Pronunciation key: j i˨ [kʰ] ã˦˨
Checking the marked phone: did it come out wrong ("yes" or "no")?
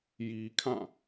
no